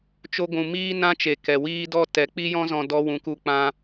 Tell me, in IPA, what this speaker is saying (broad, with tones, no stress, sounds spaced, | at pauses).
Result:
t͡ʃ o˦ ɡʷ ũ˨ m iː˦ n ã˦ t͡ʃ e˨ k ɛ˨ w iː˧ d ɔ˧ t ɛ˨˦ k͡p i˦ j ɔ̃˦ z ɔ̃˧ d ɔ˧ w ũ˨ k u˧ k͡p ã˧